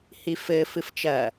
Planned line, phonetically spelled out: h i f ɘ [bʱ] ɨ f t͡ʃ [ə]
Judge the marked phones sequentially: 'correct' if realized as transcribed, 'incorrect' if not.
incorrect, incorrect

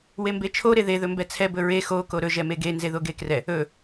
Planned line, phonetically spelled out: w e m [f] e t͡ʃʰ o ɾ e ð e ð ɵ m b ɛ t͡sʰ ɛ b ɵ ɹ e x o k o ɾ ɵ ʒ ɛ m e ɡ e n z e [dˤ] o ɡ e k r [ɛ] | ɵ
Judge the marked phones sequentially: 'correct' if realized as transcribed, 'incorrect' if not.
incorrect, incorrect, correct

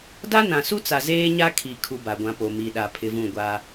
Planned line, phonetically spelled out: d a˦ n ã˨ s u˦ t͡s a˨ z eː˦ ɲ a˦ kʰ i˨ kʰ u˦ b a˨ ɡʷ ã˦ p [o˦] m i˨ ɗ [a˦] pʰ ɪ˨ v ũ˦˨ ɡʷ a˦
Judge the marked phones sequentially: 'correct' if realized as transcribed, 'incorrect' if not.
incorrect, incorrect

